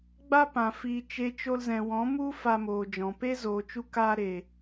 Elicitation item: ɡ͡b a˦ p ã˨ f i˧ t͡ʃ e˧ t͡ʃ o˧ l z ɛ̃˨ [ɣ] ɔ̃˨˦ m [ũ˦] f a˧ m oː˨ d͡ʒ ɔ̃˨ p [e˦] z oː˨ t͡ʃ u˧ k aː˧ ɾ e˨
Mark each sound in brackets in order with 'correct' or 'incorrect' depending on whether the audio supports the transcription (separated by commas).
incorrect, incorrect, correct